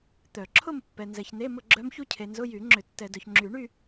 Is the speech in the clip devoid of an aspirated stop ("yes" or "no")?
no